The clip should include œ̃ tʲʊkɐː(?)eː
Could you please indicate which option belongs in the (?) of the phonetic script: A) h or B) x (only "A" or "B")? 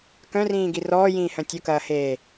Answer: A